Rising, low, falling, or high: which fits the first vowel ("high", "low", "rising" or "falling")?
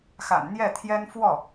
low